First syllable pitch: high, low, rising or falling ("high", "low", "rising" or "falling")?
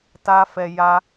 high